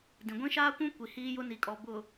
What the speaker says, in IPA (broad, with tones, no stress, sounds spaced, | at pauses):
d ĩ˨ ɡʷ ĩ˦ ʃ aː˦ kʷ ũ˦ kʷ i˨ h iː˦ j ʊ˦ n i˨ kʼ ɔ˨ b ʊ˨